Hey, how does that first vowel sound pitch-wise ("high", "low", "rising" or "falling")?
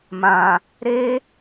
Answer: low